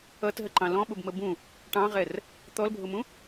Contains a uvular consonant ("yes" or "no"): yes